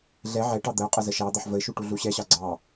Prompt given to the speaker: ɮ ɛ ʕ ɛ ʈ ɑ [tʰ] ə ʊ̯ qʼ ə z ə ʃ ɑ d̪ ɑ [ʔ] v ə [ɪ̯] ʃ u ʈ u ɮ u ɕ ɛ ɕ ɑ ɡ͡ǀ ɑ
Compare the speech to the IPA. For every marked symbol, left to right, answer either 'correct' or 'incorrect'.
incorrect, incorrect, correct

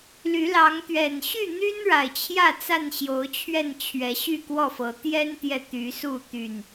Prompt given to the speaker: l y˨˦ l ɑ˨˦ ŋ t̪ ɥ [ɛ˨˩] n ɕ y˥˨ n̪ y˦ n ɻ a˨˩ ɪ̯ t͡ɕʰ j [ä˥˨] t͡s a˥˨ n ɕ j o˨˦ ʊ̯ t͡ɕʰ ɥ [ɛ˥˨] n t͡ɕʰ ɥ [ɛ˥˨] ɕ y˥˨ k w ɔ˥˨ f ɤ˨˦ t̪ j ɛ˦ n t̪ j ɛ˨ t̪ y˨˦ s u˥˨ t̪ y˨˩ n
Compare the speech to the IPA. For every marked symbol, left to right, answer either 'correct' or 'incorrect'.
correct, correct, correct, incorrect

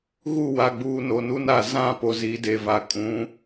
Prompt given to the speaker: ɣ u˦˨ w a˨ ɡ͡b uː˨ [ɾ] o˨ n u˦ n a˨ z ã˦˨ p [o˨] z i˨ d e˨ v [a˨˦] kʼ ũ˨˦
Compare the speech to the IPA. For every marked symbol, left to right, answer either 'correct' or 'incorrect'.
incorrect, correct, incorrect

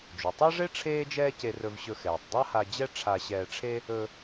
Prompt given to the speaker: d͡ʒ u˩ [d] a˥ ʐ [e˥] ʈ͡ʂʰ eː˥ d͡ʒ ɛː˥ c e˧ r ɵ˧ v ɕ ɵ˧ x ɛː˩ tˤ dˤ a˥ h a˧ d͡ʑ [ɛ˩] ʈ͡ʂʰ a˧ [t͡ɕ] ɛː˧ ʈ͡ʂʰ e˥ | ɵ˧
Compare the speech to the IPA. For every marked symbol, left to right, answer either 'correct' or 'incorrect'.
incorrect, correct, incorrect, incorrect

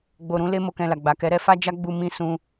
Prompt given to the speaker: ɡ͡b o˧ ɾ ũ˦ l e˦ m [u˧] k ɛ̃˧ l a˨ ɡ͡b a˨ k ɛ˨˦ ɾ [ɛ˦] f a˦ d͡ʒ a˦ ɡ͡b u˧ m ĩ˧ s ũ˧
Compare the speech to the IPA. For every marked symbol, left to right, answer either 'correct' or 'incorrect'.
incorrect, correct

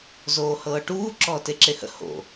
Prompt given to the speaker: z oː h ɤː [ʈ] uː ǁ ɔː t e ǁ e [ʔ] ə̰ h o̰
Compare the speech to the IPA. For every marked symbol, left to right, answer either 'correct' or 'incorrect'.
correct, incorrect

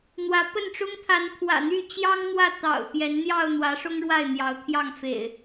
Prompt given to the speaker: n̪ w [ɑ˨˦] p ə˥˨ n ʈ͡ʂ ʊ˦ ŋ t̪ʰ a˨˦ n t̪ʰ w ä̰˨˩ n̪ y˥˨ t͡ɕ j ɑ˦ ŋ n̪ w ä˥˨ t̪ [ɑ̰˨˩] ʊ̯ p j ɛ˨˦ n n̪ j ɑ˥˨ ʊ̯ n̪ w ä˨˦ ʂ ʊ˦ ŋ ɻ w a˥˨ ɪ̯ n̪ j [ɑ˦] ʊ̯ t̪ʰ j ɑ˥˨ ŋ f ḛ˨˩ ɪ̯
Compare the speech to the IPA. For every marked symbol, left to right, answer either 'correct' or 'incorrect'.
incorrect, correct, incorrect

